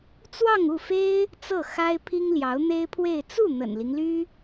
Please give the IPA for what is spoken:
t͡s w ɑ˥˧ ŋ u˥˩ f e˥ ɪ̯ | t͡s ɤ˥˩ x a˥ ɪ̯ pʰ i˥ ŋ l j ɑ˧˥ ʊ̯ n̪ e˥ ɪ̯ pʰ w e˥˧ ɪ̯ t͡s u˥˩ n̪ ə̰˨˩ n l i˦ ŋ l y˥

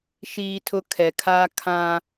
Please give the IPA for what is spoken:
ʃ iː˨ tʰ ʊ˨ kʰ ɛ˨ kʰ aː˦ kʰ ã˦

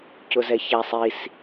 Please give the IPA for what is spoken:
c ʊ z ɛ ç æ sˤ i s

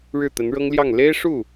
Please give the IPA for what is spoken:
ɻ ɻ̩˥˩ t̪ ə˧˥ n ɻ ɤ˥ ŋ l j ɑ˥˩ ŋ l e˥ ɪ̯ ʂ u˥˩

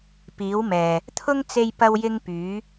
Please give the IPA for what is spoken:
p iː˨˥ w m ɛː˨ | t̪ʰ ʊ˥ ŋ t͡s e˥ j p ɐ˥ w j ɪ˥ ŋ p yː˨˥

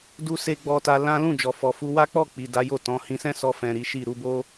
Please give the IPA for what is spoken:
d u˦ s e˦ ɡ͡b ɔ˧ t a˧ l ã˦ l ũ˦˨ d͡ʒ ɔ˨ f ɔ˨ f u˧ w a˦ k͡p ɔ˦˨ k͡p i˨ d a˨˦ j o˦˨ t ɔ̃˨˦ h ĩ˧ s ɛ̃˦ s ɔ˧ f ɛ̃˨ ɾ i˨˦ ʃ i˦˨ ɾ u˧ b o˦

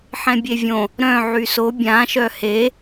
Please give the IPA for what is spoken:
ħ ɛ̃ bʲ e vʲ õ | ɾ œ̃ ʕ y s o bʲ ã ʃ œ h e

